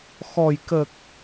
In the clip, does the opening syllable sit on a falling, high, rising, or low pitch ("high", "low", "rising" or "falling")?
low